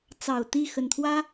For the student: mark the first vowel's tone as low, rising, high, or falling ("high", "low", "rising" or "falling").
low